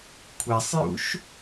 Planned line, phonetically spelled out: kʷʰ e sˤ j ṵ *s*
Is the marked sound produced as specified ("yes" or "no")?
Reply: no